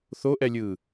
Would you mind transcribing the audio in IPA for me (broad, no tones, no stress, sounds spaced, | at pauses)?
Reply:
θ o ʔ ɛ lʲ ɯː